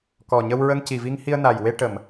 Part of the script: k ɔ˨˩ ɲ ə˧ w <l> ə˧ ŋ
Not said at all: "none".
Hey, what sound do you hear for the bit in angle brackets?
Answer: ɹ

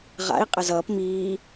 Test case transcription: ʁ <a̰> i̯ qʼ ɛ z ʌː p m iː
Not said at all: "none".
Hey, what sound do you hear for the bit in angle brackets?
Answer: a̰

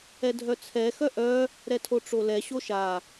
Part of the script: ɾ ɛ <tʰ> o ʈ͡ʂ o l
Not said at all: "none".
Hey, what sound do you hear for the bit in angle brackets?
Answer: tʰ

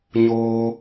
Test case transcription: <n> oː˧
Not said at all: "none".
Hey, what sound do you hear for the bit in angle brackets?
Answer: ɲ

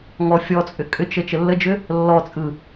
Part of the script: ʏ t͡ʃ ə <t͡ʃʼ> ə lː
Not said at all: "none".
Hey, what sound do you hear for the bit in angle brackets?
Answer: t͡ʃ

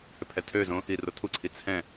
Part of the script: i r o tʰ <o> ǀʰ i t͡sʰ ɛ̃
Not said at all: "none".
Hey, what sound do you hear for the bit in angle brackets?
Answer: u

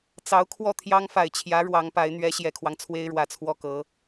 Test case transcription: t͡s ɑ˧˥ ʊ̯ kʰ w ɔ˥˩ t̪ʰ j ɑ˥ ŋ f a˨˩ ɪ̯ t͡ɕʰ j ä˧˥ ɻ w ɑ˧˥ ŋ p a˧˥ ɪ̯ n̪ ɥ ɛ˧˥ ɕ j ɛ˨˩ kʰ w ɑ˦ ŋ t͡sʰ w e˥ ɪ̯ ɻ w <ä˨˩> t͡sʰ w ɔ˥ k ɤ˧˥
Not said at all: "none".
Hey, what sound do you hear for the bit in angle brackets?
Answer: ä˨˩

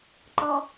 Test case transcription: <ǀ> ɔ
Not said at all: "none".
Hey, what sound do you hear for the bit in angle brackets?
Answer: ǃ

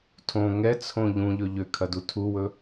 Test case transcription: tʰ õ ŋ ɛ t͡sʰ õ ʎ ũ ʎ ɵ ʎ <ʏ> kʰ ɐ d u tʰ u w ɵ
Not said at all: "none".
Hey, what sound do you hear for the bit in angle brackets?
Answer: ʏ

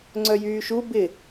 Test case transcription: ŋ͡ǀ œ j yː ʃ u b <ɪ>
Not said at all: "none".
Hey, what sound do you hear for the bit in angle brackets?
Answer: ɪ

